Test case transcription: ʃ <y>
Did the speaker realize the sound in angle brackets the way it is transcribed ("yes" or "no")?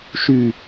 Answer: yes